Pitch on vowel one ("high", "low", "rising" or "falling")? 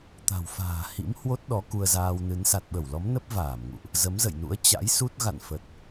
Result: low